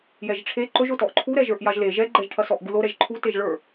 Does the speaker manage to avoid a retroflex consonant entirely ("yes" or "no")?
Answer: no